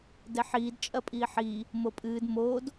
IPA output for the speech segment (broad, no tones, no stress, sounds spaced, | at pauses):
d ɛ ħ iː d t͡ʃʼ ɐ pʼ iː ħ iː | m o pʼ ɨː d m oː d